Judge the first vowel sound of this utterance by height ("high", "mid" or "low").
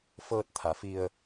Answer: mid